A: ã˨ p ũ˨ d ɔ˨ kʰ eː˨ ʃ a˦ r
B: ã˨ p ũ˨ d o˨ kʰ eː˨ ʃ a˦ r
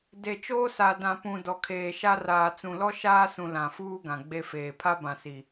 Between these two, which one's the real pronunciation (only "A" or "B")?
A